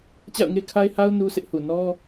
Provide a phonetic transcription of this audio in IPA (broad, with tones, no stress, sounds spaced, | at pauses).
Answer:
t͡ɕ a̰˦˨ ʊ̯ ŋ e˦ kʰ a˦ ɪ̯ h a˦ ʊ̯ n u˦ s ɪ˦ ʔ h u˨ n ɔ˦